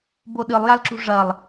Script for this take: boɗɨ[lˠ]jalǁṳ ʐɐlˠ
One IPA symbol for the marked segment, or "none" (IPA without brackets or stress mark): lˠ